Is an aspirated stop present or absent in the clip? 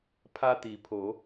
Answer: present